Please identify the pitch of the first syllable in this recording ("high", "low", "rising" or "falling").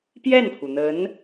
falling